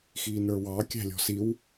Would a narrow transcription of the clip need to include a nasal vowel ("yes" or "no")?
no